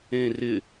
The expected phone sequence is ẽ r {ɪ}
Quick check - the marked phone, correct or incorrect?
correct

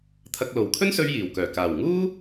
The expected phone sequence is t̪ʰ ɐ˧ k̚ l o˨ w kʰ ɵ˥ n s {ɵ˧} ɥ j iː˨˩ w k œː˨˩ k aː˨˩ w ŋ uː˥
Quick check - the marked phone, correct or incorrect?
correct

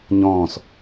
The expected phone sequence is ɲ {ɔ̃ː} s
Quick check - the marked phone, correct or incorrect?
correct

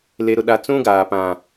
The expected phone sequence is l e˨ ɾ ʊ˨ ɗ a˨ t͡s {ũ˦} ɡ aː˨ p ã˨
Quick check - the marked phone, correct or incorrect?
correct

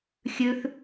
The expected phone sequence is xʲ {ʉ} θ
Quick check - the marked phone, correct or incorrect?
correct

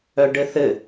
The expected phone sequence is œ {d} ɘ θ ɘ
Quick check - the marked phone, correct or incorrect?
incorrect: ɖ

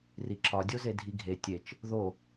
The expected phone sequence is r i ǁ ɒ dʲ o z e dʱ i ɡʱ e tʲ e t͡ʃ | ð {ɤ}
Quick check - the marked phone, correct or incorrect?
incorrect: o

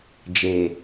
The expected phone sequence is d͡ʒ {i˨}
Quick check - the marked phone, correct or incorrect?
incorrect: e˨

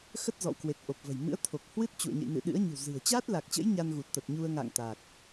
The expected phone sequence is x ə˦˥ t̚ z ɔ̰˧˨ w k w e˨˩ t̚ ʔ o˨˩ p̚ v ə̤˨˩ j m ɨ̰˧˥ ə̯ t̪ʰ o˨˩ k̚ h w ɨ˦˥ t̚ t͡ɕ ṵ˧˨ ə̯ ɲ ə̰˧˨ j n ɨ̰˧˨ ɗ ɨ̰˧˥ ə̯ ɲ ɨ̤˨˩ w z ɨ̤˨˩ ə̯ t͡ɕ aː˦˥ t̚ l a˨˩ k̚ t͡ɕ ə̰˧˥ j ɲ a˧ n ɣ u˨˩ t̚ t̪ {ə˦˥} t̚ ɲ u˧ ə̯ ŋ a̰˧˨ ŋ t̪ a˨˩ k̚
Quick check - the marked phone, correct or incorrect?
incorrect: ə˨˩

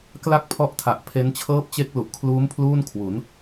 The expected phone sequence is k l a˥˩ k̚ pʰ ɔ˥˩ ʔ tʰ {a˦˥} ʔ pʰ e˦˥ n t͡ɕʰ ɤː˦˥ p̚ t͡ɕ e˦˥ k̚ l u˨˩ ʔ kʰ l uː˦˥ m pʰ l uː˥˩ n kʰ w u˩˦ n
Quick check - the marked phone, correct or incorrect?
incorrect: a˨˩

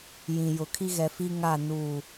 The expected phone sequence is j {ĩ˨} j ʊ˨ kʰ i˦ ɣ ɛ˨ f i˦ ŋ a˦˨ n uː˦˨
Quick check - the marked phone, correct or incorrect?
correct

